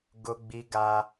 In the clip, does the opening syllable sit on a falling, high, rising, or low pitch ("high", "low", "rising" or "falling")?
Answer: high